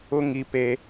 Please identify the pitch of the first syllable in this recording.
high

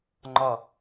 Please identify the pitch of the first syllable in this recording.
low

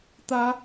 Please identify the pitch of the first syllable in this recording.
high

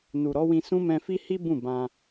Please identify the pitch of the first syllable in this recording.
low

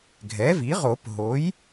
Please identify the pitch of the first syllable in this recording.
rising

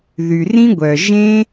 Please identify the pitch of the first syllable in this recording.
low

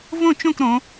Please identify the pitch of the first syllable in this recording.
falling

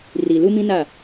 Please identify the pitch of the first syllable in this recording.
low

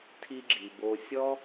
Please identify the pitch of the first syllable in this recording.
high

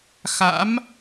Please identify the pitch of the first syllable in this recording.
rising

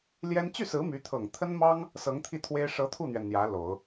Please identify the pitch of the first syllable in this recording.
high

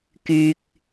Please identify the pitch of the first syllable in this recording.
low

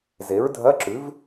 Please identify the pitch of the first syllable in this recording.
rising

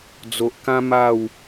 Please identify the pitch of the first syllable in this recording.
low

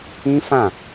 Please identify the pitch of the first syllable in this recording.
high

